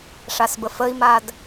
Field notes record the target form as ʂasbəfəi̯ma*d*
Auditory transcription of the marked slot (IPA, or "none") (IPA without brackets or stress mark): d